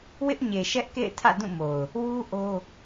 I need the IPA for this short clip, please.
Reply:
w ɪ˦ ʔ ɲ e˨ ʃ ɛ˦ ʔ k ḛ˦˨ ɪ̯ tʰ ä̰˦˨ d ũ˦˨ m o˨ ʊ̯ | w u˦ ʔ o˦

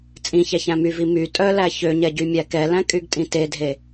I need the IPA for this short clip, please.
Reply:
t͡sʼ ĩ ç æ ç æ̃ m y v i m y tʼ œ l æ ç ø ɲ ɛ ɟ y mʲ æ k ɛ l æ̃ kʼ y ɡ tʼ ĩ t e dʱ e

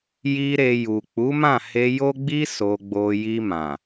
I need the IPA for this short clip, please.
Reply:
j i˦ ɾ e˧ j u˨ k͡p u˨˦ m ã˦˨ h e˧ j o˦ ɡ͡b i˦ s o˧ ɡ͡b o˧ j i˧ m ã˨

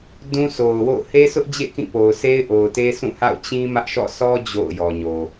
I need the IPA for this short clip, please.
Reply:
d ũ˦ s o˨ ʊ̯ w o̰˦˨ ʊ̯ h e˦ s ʊ˦ ʔ d͡ʑ ḛ˦˨ k ĩ˦˨ p o˨ ʊ̯ s e˦ ɪ̯ ʔ o˨ ʊ̯ t e˦ s ũ˦˨ h a̰˦˨ ʊ̯ t͡ɕ ĩ˦ m ä˦ ʔ ʃ ɔ̰˦˨ sʰ ɔ˦ d͡ʑ o̰˦˨ ʊ̯ j ɔ˨ ɲ o˨

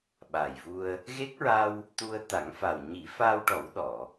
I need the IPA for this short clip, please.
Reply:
ɓ aː˨˩ j v u˧ ə̯ | ɣ e˦˥ k̚ ɹ a˧ w | t̪ u˧ ə̯ t̪ a˨˩˦ ŋ f a˨˩ w ɲ i˨˩˦ f aː˧ w ʈ ɔ˨˩˦ w ɗ ɔ˨˩˨

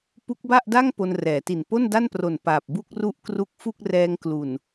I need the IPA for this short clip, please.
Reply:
p u˦˥ k̚ b a˥˩ ʔ d a˥˩ ŋ p o˧ n r ɛː˩˦ t i˨˩ n p o˥˩ n d a˥˩ n p r o˨˩ n p aː˨˩ p̚ b u˥˩ k̚ r u˥˩ ʔ k r u˦˥ k̚ f u˥˩ k̚ r ɛː˧ ŋ k l u˨˩ n

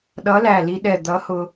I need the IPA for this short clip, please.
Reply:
ɗ ʌ˨˥ l æ˧˩ l i˧ ɗ ɛ˧˩ d̪ ʌ˨˥ h ʊ˧

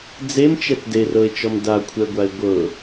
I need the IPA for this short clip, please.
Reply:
d͡z e m t͡ʃ ɛ t d e r ɤ ɪ̯ t͡ʃ ɔ m d a kʷʰ ɛ ɡʷ a ɪ̯ ɡʷ ɤ

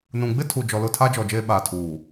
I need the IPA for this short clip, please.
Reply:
n ũ˨ ɡ͡b ɪ˦ tʰ u˨ d͡ʒ ɔ˨ l ʊ˦˨ tʰ a˦ d͡ʒ ɔ˨ d͡ʒ eː˦ ɓ aː˨ tʰ uː˨

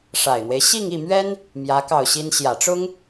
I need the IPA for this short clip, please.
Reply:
ʂ a˨˩ ɪ̯ n̪ w e˦ ɪ̯ ɕ i˥˧ ŋ i˥˩ m ɥ ɛ˥ n | m j ä˧˥ k ɑ˥˩ ʊ̯ ɕ i˥ n ɕ j ä˨˩ ʈ͡ʂ ʊ˥ ŋ

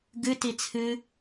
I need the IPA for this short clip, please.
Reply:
ɡ ɨ t i t͡sʰ ɨ

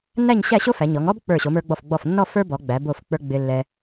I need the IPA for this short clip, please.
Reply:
nː æ˥˧ ɲ ɕ æ˥˧ ɕ o˥ f æ˩˧ ɲ ɔ˩˧ ŋ ɔ˥ b k͡p ə˞˧˩ ɕ o˩˧ m ə˞˧ ɡ͡b ɔ˧˩ f ɡ͡b ɔ˧˩ f nː ɔ˥˧ f ə˞˥ b ɔ˩˧ ɡ͡b æ˩˧ b o˧˩ f k͡p ə˞˧ ɡ͡b ɪ˧ lː ɛ˧

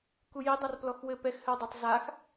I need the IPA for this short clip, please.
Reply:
k u j i dˤ a r p l ɔ x w ɘ p ɛ x h ɘ w dˤ ɛ tˤ z a x

